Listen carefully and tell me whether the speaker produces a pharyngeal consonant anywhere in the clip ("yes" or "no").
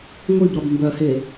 no